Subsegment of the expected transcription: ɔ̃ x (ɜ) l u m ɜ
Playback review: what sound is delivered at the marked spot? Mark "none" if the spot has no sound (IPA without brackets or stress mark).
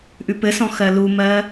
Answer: ɜ